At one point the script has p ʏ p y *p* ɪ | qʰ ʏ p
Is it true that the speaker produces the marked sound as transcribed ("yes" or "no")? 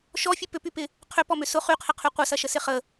yes